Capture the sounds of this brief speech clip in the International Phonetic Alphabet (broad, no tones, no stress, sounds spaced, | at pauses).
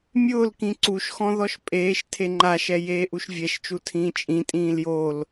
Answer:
mʲ ʊː l k ĩ ǀ u ʃ x ɔ̃ ð ɔ ʃ pʼ eː ʃ tʰ e ŋ͡ǃ a ʃ ɛ j eː ʔ u ʃ vʲ ɛ ʃ t͡ʃ u tʰ ĩː t͡ʃʼ ĩ tʼ ĩː l j o l